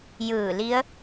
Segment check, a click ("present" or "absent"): absent